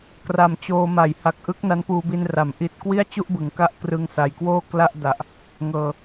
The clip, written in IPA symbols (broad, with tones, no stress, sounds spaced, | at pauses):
k r a˨˩ m t͡ɕ oː˧ m a˩˦ j h a˨˩ k̚ ʔ ɯ˦˥ k̚ n a˦˥ n p uː˧ b i˧ n r a˩˦ m ʔ i˨˩ t̚ k w i˥˩ a̯ t͡ɕ u˥˩ ʔ b ɯ˩˦ ŋ k a˦˥ ʔ k r ɯ˦˥ ŋ s a˨˩ j k w oː˥˩ k l a˥˩ ʔ d a˨˩ ʔ | ŋ ɤː˨˩